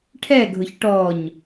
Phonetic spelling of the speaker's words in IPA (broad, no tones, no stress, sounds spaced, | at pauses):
ʈʰ ɛ ɡʱ ʊ ç ʈ ɔ ɲ